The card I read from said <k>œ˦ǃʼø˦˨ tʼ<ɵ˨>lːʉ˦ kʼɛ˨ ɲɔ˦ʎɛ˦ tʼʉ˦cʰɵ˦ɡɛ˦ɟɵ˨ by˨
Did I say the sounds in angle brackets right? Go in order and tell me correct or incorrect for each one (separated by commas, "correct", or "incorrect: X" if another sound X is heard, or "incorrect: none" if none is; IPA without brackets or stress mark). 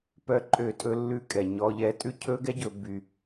incorrect: p, incorrect: ɵ˦